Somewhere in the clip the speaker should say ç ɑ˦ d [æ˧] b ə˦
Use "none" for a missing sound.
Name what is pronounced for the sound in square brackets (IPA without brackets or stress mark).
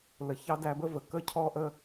æ˧